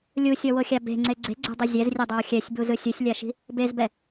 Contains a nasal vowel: no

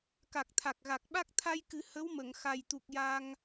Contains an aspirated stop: yes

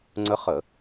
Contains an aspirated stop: no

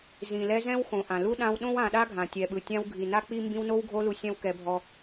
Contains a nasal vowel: yes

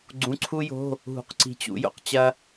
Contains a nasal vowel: yes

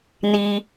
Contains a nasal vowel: no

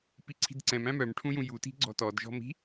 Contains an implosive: no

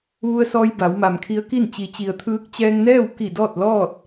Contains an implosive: no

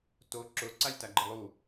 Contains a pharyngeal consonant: no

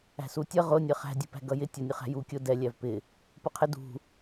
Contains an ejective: no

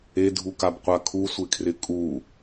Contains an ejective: yes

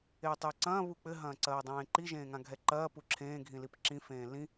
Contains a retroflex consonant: no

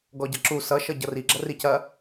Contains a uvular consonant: no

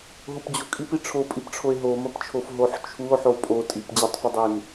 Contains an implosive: no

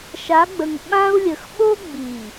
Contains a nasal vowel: yes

